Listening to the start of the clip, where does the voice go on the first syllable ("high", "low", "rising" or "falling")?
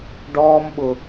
high